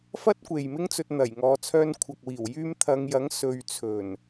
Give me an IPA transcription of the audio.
f ɐ˥ t̚ kʷ e˨ j m ɪ˥ ŋ t͡s ɵ˧ t̚ n̪ ɐ˨˩ j ŋ ɔː˨˧ t͡sʰ œː˧ n kʷʰ ɐ˨ k̚ w iː˨˩ w j yː˧ m t̪ʰ ɐ˨˧ ŋ j ɐ˨˥ ŋ s ɵ˧ ɥ t͡sʰ ɵ˨˩ n

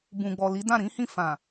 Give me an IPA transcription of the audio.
b ũ˨ ɡ͡b ɔ˨ l i˨˦ d ã˦˨ ɾ ĩ˨˦ h ĩ˦˨ f ã˨

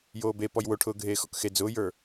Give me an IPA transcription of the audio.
j oː b e p ɔ j w o ʈʰ ʊː ɡʱ eː x ɔ̰ k x e d͡z ʊː j ə˞

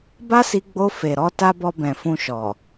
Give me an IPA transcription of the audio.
b a˦ s i˧ ɡ͡b o˧ f e˨ ɾ ɔ˧ t a˧ b ɔ˧ b ɛ̃˨ f ũ˧ ʃ ɔ˨

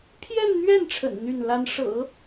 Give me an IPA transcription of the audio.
pʰ j ɛ˥˧ n n̪ ɥ ɛ˥˩ n ʈ͡ʂʰ ə̰˨˩ n n̪ y˥˩ n l a˥ n ʂ ɤ̰˨˩˦

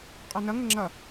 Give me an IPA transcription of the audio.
qʼ ɔ n ʌ ŋ ə ŋ͡ǁ ʌ

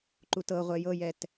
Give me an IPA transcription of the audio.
ǃ u t ɤ ʁʷ ɛ j ɤ j ɛ t

